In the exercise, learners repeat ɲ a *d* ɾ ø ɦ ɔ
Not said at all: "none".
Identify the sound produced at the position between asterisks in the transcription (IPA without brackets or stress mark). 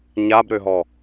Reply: b